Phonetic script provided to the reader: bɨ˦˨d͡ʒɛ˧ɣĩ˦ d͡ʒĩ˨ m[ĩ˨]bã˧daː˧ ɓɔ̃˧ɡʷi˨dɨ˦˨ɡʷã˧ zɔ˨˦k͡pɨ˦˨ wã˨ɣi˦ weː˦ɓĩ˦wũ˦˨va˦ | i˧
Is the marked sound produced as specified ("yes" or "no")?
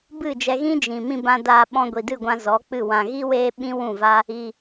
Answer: no